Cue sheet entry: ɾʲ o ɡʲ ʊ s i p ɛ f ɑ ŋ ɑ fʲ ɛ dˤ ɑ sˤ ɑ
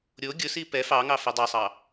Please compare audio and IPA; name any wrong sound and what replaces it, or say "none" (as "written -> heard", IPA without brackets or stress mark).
fʲ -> f